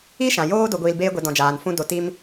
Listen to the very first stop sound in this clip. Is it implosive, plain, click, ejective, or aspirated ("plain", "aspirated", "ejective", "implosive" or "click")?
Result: plain